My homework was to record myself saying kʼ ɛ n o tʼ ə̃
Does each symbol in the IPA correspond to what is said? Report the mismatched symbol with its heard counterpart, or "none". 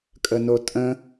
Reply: ɛ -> ə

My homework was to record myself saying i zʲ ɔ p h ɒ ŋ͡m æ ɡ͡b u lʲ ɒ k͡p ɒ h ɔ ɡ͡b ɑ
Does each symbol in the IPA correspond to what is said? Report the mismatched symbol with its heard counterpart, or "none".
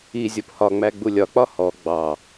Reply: none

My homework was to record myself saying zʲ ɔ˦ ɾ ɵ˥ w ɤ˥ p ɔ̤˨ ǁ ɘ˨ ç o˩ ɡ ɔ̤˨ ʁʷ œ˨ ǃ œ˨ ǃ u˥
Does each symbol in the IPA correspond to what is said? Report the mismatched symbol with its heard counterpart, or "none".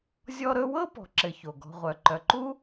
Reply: none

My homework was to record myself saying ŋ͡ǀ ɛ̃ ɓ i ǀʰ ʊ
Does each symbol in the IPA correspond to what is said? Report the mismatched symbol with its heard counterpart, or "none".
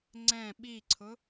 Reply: none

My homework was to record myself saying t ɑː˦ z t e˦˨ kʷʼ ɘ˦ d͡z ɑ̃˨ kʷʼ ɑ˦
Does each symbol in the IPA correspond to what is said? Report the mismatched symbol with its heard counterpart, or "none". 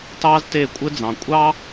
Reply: none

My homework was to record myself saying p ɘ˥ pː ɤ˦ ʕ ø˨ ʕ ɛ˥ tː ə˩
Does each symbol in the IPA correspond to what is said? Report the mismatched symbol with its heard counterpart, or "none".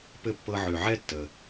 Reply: none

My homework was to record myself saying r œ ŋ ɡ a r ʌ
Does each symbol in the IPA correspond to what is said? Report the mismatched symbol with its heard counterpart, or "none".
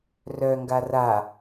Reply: ʌ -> a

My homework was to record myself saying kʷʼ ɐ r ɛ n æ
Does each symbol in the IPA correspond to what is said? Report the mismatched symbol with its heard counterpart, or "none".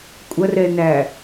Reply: none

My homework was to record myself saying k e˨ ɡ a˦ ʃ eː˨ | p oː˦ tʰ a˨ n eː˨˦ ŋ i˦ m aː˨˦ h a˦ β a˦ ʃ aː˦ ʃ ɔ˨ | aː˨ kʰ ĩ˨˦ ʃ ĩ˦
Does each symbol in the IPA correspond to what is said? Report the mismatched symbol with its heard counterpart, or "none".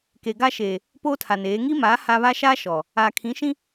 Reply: none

